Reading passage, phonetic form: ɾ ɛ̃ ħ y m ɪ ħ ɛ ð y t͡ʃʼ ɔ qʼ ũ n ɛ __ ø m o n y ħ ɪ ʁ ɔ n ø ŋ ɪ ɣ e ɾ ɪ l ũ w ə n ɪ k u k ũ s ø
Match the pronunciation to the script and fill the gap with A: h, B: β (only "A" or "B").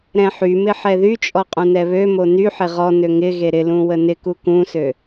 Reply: B